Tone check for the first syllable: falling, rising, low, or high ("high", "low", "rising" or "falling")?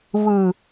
low